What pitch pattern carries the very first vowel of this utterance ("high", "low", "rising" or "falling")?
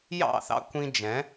falling